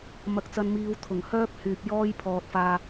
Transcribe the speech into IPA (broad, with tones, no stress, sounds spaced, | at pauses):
m ɐ˧ k̚ t͡s ɐ˧ n m iː˧ w t̪ʰ ʊ˨˩ ŋ h œː˥ p̚ h yː˨ p̚ j ɔː˥ j pʰ ɔː˨ t̚ f aː˧